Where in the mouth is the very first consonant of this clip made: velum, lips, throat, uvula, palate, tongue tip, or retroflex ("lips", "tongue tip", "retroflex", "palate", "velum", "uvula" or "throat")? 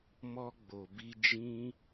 lips